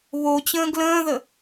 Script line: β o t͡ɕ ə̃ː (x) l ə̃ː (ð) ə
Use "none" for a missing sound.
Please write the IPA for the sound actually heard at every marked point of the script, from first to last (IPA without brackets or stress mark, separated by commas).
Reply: ɡ, ð